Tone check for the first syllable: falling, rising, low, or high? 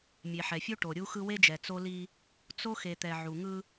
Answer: low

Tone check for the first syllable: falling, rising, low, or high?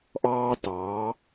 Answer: high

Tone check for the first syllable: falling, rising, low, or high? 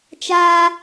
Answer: high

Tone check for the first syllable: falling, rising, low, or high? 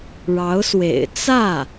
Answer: rising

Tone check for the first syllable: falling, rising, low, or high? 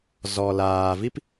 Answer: low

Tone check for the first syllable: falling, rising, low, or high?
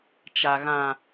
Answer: low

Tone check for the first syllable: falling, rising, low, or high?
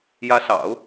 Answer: rising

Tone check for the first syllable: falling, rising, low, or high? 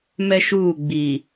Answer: high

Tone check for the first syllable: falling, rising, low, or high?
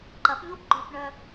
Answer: rising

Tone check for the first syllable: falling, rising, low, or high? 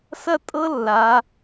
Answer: falling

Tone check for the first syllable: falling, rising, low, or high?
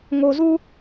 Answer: low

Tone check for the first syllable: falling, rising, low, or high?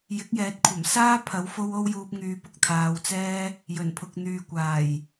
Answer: rising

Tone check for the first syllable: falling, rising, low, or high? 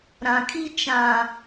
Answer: low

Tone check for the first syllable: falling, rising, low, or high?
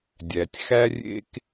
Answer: low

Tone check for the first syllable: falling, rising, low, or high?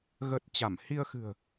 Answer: low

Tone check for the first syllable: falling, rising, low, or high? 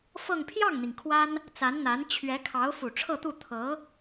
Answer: falling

